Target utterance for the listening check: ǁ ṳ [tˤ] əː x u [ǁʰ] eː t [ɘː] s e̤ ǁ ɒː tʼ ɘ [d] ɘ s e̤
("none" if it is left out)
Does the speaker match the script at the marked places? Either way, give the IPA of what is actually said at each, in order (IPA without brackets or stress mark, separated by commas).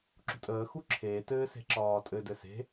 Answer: tʼ, ǁʰ, ɘː, d